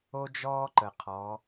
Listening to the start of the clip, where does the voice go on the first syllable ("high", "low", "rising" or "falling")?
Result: high